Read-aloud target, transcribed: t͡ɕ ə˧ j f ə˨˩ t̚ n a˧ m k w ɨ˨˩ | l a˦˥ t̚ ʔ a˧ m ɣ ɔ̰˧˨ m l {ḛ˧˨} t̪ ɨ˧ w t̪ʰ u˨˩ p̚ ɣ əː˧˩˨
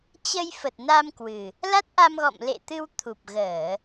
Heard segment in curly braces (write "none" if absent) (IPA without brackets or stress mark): ḛ˧˨